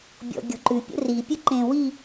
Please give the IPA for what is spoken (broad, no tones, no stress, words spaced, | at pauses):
bʲɔ̰ɡʲɔ̤ǃʉ pʲə̰ri pʲəǃẽwi